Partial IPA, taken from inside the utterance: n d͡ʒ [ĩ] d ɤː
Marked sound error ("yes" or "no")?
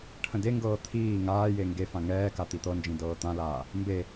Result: no